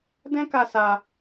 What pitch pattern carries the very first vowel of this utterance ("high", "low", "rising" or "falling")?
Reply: high